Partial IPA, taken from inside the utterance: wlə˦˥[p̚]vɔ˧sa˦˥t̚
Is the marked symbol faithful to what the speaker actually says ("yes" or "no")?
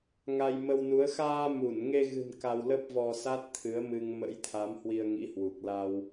yes